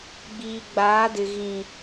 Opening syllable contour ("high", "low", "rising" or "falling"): low